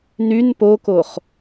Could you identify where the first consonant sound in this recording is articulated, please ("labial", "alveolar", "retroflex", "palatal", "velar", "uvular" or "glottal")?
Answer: alveolar